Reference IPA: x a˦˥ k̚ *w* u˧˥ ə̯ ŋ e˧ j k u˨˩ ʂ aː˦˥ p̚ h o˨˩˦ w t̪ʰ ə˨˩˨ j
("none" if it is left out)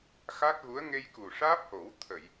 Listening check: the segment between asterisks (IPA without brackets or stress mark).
ɣ